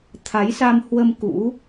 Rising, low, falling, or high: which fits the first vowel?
rising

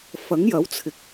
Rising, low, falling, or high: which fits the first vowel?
rising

